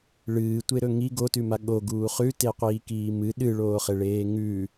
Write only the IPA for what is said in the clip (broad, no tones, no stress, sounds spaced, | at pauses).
ɭ ɨː tʷ e ɾ ɵ ŋ i ɡ o t ʉ m a ɠ o ɡ uː χ ʉ t e qʷ iː k iː m ɨ ɗ ɨ ɭ oː χ e ɭ eː ŋ ʉ